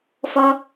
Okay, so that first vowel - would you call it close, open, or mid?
mid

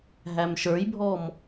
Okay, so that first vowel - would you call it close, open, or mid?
open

